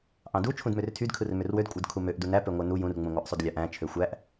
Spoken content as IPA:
ʔɑ̃du t͡ʃʰũdmørtʰyd kʰɯrmørwød kʷʼɯdkʰumøʔ dunæ pøŋʷænu jũr ŋ͡mũŋʷæʔsˤudlʲɑʔ æ̃ t͡ʃʰøxʷæʔ

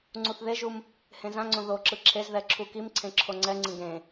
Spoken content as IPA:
ŋ͡ǀuθðeʒum | hẽzãŋ͡ǀõ ðoǁɯ ǁʰezðɛ ǁʰukimǀʰẽ ǁʰoŋ͡ǀɛŋ͡ǀĩ ɡẽ

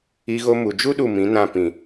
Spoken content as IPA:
i˧ɣo˧mu˨d͡ʒu˦ ɗu˦˨mĩ˨˦nã˦˨ pĩ˨

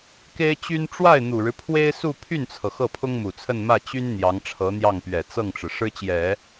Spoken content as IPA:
ke˥ɪ̯t͡ɕy˥n ʈ͡ʂwa˥˩ɪ̯ n̪u˨˩ɻɻ̩˦pʰwe˥ɪ̯su˥˧ pʰy˥˩nt͡sʰɤ˩ xɤ˥˩pʰʊ˥ŋmu˨˩t͡sʰə˥˧n mä˥˩t͡ɕy˥n n̪jɑ˧˥ŋʈ͡ʂʰɤ˧˥n̪jɑ˥˩ŋ pɥɛ˨˩ t͡sɤ˥˩ŋʈ͡ʂɻ̩˩ ʂɻ̩˥t͡ɕjɛ˨˩˦

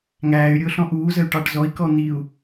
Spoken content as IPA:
ŋæːy̯ɾʲʊːɬɔ̃ ʔuːzəy̯ʈɑʈ zɔi̯kɔ n̪iu̯

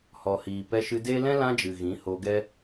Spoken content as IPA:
hɔ˨hiː˨pɛ˧ʃɨ˧ de˦ lɛ̃˦ lã˦d͡ʒɨ˨ ɣĩ˨˦ho˧ɡɛ˦

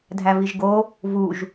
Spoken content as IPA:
dʱæviʒɡo | vuʒ

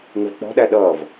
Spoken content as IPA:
ŋɪvk͡pɔ̤ɗæ ɗʌːv

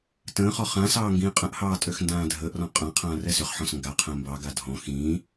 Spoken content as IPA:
tə̃ːχɔ χãsɑː ŋɡĩːqʼə̃ʔhɑː tʼøxndãːdʱəːʔrɔ̃ qʼãqʰãː rɛsʏχħɔ̃s ŋɡa qʰə̃ːmbɑɡa dʱɔ̃ xĩː

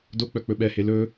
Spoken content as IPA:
dok͡pœ k͡pɵɓɛhe lɵ

